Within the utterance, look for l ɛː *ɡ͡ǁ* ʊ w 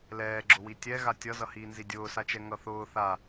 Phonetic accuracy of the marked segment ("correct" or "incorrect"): correct